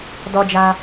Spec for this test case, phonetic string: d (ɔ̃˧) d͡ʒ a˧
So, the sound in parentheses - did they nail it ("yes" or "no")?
no